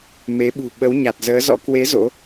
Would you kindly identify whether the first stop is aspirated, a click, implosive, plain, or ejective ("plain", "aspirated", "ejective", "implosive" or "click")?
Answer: implosive